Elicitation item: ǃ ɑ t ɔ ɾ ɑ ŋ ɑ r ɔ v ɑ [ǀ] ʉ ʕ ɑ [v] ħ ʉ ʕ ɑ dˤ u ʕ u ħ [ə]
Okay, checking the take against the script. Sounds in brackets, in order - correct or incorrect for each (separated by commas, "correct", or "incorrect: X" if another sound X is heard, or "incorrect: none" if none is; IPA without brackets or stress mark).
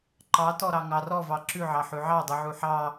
incorrect: ǁ, incorrect: none, incorrect: ɑ